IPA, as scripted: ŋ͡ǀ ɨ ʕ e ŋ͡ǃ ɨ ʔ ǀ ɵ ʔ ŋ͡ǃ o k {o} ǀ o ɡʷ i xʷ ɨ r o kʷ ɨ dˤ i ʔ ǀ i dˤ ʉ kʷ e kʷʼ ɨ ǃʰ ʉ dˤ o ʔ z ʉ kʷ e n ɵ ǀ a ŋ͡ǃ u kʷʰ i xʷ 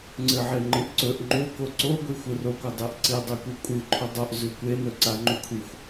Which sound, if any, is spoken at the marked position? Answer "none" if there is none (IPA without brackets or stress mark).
o